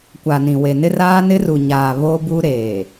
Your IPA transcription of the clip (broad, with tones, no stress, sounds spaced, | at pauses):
kʷ a˨ n ĩ˨ w e˨ n ɪ˦ r aː˦ n ɪ˦ r u˨ ɲ aː˨ β o˦ b u˦ ɾ eː˨